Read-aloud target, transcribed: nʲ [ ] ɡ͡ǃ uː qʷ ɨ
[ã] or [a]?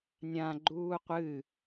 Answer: ã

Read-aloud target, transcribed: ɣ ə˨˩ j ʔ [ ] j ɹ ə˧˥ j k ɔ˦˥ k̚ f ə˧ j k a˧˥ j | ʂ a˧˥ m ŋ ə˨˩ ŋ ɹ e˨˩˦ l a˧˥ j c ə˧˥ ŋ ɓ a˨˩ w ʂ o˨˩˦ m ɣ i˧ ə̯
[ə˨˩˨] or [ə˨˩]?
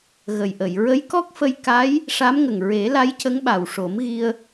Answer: ə˨˩˨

